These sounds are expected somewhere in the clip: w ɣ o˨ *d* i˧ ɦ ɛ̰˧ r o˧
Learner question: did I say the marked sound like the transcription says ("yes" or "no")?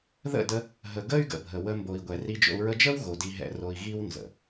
yes